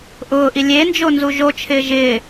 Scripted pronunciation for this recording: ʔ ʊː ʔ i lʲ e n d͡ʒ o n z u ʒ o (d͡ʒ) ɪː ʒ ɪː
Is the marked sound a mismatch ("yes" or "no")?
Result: yes